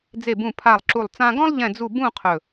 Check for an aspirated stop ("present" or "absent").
present